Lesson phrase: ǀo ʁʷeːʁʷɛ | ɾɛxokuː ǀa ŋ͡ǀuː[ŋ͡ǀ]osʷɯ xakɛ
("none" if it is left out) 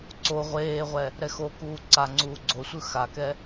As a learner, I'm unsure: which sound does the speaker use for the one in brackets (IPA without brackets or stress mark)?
ɡ͡ǀ